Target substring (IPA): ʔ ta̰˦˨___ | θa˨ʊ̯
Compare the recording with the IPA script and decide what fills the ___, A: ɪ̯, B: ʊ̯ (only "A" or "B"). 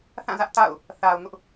B